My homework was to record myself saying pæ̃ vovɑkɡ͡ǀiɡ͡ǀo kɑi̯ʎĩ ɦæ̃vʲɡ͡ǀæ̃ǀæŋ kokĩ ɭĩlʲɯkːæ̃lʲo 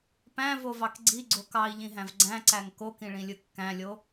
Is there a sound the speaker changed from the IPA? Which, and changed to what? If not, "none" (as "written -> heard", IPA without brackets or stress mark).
vʲ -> v